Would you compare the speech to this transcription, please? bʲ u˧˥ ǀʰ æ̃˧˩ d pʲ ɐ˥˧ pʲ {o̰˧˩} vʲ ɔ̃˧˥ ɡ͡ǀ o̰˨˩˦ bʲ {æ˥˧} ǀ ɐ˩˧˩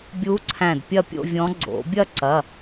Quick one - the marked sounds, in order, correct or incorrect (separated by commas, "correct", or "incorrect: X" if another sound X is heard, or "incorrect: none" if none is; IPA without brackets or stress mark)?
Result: incorrect: o̰˥˧, incorrect: ɐ˥˧